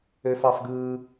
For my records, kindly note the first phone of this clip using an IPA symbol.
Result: ø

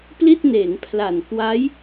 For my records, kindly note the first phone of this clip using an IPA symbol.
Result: p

